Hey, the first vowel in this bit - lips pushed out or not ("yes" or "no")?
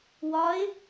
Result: yes